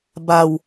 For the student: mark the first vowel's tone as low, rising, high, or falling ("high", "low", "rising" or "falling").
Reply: low